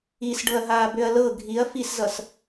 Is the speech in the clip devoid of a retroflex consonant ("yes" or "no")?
no